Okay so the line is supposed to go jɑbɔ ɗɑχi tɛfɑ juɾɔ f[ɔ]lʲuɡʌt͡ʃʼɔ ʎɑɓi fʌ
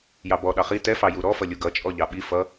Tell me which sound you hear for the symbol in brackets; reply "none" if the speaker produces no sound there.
ʌ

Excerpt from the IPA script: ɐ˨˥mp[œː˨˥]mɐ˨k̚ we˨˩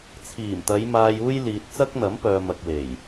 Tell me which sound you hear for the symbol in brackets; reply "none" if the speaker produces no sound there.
œː˨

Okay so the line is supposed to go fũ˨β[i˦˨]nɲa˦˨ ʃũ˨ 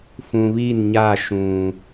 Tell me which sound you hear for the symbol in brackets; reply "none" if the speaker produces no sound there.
i˦˨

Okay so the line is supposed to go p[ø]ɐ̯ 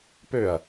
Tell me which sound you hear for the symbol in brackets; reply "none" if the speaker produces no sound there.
ø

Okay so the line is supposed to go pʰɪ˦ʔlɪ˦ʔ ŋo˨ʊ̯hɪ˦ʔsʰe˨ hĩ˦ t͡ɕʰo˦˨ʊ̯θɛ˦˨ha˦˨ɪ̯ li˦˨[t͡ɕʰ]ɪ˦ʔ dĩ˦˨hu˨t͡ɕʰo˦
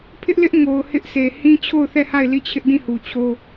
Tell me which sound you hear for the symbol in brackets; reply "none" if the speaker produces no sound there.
t͡ɕʰ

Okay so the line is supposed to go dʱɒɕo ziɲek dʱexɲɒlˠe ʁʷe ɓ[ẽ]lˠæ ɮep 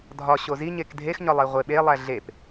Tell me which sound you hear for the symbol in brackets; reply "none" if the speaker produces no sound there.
e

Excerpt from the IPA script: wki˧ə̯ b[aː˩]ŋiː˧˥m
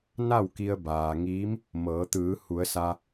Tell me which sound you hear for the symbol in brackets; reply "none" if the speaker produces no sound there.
aː˩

